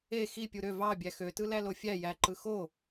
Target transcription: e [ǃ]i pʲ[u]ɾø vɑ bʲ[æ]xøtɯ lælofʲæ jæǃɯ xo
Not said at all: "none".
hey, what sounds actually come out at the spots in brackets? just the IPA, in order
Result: x, u, æ

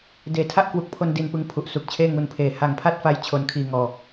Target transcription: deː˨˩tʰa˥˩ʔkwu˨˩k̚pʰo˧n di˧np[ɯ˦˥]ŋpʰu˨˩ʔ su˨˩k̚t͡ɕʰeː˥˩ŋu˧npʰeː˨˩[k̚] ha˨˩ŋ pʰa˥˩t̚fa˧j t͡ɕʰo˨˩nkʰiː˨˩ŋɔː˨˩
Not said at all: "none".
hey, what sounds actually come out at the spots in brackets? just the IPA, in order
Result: ɯ˦˥, none

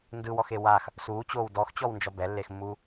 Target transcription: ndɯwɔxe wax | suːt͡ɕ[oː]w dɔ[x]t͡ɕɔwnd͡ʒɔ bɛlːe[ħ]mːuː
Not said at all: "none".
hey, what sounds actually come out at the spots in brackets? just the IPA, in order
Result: oː, x, x

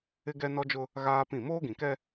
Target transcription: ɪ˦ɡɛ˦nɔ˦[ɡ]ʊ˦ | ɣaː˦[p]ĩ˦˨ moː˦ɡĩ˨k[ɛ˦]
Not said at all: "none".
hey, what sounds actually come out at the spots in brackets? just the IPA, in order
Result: d͡ʒ, p, ɛ˦

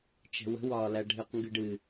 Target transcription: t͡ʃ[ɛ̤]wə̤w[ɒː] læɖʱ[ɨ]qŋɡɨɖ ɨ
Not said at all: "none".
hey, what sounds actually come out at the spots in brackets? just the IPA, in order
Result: ɛ̤, ɒː, ɨ

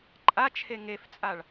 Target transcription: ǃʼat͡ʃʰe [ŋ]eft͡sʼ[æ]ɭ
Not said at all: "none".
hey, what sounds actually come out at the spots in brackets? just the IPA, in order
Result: ŋ, a

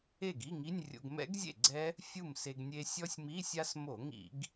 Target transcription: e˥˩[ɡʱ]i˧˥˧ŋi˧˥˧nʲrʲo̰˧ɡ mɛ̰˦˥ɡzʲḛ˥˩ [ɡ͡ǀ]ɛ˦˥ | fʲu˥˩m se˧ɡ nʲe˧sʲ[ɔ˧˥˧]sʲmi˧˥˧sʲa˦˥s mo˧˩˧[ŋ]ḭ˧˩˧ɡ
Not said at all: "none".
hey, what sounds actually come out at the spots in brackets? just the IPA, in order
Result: ɡ, ɡ͡ǀ, ɔ˦˥, ŋ

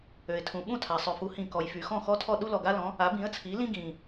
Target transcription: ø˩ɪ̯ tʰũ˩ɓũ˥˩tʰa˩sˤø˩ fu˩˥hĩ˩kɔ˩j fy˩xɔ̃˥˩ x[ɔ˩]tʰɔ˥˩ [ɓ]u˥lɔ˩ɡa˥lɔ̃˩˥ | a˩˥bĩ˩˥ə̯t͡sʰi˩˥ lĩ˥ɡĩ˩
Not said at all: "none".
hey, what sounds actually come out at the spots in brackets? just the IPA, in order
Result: ɔ˥, ɗ

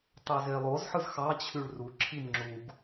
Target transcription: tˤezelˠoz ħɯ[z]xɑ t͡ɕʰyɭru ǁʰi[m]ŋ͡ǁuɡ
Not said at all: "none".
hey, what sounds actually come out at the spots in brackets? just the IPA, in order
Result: z, m

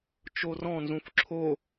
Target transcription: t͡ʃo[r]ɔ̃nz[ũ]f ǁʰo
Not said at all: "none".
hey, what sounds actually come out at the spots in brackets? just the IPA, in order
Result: r, ũ

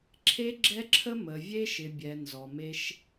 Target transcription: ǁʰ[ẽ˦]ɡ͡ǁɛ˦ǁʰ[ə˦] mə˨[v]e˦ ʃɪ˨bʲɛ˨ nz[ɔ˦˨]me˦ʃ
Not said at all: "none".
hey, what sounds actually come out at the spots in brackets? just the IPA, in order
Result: e˦, ə˦, vʲ, ɔ˨

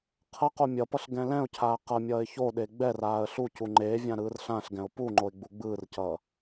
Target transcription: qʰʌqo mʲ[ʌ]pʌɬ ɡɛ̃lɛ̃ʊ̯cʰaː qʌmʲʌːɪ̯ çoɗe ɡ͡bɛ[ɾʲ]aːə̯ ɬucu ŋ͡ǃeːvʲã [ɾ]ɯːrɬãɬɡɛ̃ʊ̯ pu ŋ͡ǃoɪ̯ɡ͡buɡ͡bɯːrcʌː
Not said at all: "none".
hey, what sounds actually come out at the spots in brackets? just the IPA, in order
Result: ʌ, r, ɾ

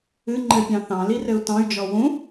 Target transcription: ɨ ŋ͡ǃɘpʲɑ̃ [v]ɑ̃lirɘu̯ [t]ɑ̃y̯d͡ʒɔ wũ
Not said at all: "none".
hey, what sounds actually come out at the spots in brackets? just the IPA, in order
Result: θ, t

